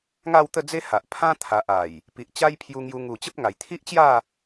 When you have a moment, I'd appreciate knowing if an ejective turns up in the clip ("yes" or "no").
no